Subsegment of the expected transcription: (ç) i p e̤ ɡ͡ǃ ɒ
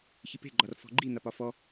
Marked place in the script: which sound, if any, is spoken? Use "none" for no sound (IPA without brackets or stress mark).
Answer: ç